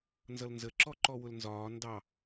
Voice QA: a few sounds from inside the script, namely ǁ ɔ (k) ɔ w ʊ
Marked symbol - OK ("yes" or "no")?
no